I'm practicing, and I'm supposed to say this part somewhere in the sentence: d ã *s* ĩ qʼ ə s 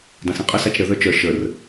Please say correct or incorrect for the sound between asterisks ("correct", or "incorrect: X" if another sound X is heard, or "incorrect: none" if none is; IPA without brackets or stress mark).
correct